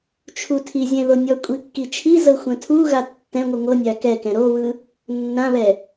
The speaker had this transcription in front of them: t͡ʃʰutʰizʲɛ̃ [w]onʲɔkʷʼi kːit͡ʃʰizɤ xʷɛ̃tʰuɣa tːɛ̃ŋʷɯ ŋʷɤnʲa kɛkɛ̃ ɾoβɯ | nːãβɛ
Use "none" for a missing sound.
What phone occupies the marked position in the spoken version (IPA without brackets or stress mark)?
ð